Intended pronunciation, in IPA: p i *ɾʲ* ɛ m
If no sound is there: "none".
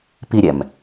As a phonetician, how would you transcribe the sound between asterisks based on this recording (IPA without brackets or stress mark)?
ɾʲ